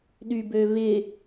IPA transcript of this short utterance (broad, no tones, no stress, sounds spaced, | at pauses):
ɗ y b ø v ɪ